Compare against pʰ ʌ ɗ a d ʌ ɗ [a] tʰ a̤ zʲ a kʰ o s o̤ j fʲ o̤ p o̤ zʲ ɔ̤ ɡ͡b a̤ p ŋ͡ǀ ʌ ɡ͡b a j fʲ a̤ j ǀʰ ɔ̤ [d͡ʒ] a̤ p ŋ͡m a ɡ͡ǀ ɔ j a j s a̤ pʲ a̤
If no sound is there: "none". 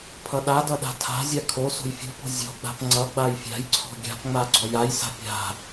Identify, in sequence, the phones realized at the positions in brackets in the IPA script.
a̤, ɡʲ

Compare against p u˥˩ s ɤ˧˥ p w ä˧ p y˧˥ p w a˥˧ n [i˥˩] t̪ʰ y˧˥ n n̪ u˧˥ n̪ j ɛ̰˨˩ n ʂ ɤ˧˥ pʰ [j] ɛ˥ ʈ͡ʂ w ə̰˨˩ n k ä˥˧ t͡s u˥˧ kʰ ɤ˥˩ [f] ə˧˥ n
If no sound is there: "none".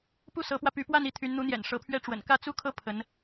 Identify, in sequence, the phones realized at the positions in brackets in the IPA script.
i˥˩, ɥ, pʰ

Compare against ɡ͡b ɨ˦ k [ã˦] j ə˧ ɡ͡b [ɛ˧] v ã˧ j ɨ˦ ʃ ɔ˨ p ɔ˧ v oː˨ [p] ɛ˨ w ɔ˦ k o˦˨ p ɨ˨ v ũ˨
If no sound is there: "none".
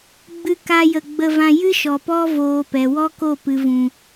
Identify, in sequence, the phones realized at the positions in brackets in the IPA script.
a˦, ə˧, p

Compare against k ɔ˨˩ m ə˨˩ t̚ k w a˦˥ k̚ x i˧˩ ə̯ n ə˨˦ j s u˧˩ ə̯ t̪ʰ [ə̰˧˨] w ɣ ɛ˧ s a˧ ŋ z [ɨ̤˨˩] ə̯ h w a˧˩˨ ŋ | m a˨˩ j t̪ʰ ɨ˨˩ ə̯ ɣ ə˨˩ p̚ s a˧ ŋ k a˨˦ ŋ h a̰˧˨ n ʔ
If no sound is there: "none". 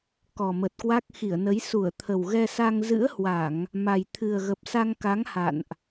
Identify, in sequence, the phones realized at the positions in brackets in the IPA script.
ə˨˩, ɨ̰˧˥

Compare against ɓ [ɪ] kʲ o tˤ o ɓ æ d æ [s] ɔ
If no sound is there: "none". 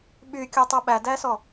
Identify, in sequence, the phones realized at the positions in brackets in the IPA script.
y, s

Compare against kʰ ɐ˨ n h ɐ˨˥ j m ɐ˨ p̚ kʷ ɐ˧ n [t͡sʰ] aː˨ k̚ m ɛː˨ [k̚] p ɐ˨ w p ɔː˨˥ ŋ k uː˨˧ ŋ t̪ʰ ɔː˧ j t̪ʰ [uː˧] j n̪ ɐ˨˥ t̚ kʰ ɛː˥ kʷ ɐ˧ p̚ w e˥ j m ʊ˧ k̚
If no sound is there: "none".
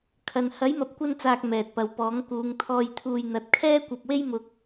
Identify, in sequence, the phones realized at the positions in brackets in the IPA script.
t͡s, t̚, uː˧

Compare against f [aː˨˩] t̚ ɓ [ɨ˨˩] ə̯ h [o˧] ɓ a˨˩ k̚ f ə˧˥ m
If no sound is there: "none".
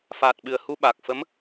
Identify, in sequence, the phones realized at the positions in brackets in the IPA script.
aː˨˩, ɨ˨˩, u˧

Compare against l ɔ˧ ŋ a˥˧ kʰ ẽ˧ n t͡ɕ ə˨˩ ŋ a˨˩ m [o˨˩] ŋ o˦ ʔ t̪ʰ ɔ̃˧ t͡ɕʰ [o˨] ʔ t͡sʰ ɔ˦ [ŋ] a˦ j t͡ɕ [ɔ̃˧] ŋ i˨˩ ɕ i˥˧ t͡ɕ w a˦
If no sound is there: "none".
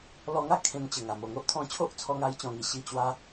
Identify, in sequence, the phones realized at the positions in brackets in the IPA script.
o˨˩, o˦, ŋ, ɔ̃˧

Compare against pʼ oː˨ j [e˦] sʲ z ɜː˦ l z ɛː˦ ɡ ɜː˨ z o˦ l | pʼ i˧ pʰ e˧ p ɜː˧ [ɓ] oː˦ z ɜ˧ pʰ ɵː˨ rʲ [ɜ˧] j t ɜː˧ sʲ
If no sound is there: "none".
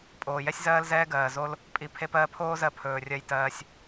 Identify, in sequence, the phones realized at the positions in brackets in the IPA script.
ɛ˦, pʰ, ɜ˧

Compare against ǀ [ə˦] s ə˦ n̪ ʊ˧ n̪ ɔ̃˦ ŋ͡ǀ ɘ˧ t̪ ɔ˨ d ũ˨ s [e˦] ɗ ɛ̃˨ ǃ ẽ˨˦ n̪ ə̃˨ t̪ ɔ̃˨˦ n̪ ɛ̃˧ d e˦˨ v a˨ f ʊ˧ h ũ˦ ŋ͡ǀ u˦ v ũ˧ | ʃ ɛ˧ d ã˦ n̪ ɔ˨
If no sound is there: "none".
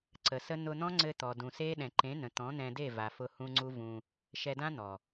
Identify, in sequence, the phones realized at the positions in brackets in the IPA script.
ə˨, e˦

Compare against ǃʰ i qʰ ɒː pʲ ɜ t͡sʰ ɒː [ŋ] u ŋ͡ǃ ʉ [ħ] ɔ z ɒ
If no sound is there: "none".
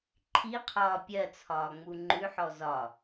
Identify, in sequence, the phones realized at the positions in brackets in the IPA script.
ŋ͡m, ħ

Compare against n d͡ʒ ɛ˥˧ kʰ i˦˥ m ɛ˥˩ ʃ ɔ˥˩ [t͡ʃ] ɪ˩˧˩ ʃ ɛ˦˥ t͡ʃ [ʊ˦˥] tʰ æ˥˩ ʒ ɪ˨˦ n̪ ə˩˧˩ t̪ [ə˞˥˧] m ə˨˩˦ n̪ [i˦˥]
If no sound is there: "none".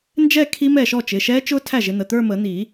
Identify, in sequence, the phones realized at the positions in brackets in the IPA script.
t͡ʃ, ʊ˦˥, ə˞˥˧, i˨˩˦

